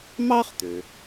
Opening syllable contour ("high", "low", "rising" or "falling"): high